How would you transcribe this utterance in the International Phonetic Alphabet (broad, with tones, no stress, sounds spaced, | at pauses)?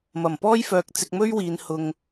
m ɐ˨˩ m p ɔː˥ j f œː˧ k̚ t͡s ɪ˧ k̚ m ɵ˥ ɥ w iː˨˧ n h ʊ˧ ŋ